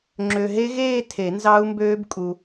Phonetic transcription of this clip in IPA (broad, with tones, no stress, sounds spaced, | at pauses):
ŋ͡ǁ ø˨ ɦ e˦˥ ɣ eː˥˧ tʰ e˨˩˦ n z ɑ˦˥ u̯ m b øː˦˥ b kʼ u˨